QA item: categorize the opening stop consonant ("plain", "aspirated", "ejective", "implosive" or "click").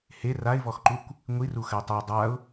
click